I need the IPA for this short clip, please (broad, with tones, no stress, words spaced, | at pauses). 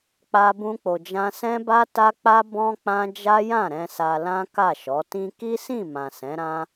k͡pa˦bũ˦k͡po˧d͡ʒã˦ sɛ̃˦ba˦ta˦ k͡pa˦ bɔ̃˦k͡pã˦ d͡ʒa˦jã˦˨ɾɛ̃˧ sa˧lã˦ ka˦˨ʃɔ˨˦tĩ˦ ki˦sĩ˦˨mã˨ sɛ̃˨˦ɾã˦